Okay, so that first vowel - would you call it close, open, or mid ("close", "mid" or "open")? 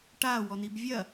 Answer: open